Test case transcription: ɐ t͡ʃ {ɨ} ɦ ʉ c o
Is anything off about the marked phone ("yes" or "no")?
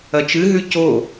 no